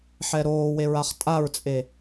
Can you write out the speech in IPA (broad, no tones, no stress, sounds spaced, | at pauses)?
ħ ɛ ɾ oː w e ɹ a χ tʼ a ɹ t͡sʼ e